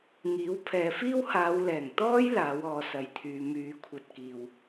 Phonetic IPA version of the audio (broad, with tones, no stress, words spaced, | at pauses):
ŋiː˨˥wpʰɛː˨˧fiː˥w haː˨˧wlɛː˨˩ŋ t̪ɔː˥j laː˨˥wɔː˨˧sɐ˨˧jt̪ʰyː˨˧ myː˨˧kʷʰɐ˧t̚kiː˨w